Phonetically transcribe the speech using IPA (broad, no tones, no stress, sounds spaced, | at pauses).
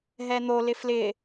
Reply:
ɦ ɛ n̪ o l ɪ f l ɪ